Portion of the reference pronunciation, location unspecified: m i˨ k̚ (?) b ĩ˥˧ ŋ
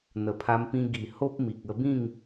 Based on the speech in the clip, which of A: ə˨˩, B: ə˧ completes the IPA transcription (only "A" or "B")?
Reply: B